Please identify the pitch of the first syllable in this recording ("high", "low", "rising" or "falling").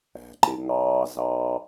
low